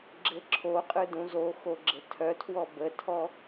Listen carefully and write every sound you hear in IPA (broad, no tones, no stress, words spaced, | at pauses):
ɡ͡ǁɘǁʰoqʼɯ dũzoxo ɡ͡ǁɘtʰœtʰwɔ bətʰɔ